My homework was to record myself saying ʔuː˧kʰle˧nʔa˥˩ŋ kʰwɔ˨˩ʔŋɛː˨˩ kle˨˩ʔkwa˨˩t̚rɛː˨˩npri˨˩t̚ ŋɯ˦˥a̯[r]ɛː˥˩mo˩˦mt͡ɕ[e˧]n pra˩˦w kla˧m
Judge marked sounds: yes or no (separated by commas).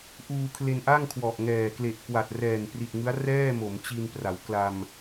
yes, no